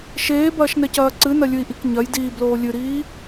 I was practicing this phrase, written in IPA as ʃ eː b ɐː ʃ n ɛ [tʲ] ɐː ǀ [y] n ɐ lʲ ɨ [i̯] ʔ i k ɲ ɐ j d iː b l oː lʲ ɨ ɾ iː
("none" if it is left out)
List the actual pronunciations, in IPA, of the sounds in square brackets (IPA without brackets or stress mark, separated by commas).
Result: c, ɨ, i̯